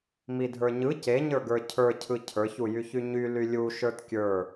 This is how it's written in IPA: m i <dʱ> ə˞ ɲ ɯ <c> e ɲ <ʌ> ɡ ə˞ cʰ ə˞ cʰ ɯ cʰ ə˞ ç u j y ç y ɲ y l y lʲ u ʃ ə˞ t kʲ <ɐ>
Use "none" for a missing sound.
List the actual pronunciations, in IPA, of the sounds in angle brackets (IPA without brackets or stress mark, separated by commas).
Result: dʱ, c, ə˞, ə˞